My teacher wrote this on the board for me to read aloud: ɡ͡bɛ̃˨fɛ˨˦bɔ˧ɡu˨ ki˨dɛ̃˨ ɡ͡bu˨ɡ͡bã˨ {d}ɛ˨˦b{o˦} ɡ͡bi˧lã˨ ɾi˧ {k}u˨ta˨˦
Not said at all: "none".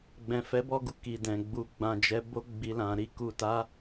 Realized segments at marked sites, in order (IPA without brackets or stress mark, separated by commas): d͡ʒ, o˦, k